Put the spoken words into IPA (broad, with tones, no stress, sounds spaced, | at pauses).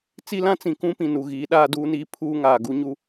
t͡s i˦ l ã˦ t͡s ĩ˨ k ũ˦ p ĩ˨ n u˨ ɣ iː˨˦ ɗ aː˦ d uː˦ n iː˦ pʰ uː˦ ŋ aː˨ ɡ u˦ ɲ u˦